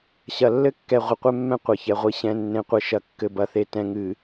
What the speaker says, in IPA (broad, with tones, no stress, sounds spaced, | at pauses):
ɕ ɐ˨ lː ɘ˦ kː ɛ˨ ʁʷ ɘ˨ qʷ ɛ˦ mː ɛ̃˦ qʷ ɐ˨ ç ɛ˨ ʁʷ i˨ ɕ ɛ̃˨ nː ẽ˨ qʷ ɘ˨ ʃ ɐ˨ kː ɘ˨ b ɐ˨˦ θ e˨ t ɛ̃˨ ŋ ɨ˨